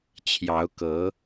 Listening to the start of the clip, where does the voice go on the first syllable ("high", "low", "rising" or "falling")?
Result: rising